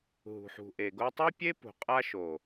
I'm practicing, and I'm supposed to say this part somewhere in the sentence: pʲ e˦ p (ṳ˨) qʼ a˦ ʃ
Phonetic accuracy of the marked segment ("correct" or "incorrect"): correct